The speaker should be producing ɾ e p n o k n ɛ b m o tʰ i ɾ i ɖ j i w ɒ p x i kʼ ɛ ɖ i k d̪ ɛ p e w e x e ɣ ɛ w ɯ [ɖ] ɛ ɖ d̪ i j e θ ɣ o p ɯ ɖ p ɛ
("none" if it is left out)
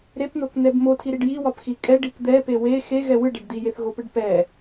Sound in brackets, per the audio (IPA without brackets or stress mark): ɖ